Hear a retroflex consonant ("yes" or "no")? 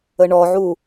yes